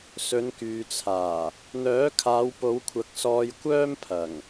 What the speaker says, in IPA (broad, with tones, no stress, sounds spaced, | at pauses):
s ɵ˨˧ n k yː˨ t͡sʰ aː˨˩ | n̪ œː˨˥ kʰ aː˨˧ w p o˨˧ w kʷʰ ɐ˨˥ k̚ s ɔː˧ j kʷ œː˥ m pʰ ɐ˨˩ ŋ